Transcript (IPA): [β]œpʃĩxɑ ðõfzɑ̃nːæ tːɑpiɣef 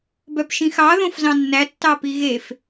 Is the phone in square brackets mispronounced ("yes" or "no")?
yes